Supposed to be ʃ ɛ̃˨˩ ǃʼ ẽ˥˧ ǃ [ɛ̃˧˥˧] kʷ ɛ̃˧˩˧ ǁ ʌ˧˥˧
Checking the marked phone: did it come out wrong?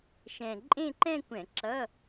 yes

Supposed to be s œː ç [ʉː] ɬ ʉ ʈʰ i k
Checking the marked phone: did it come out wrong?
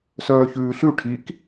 no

